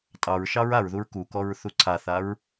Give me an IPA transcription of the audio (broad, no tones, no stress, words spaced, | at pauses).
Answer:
tʼɑɹʃɑɹ aɹðuɹ kukɔɹ θuǀʰaθaɹ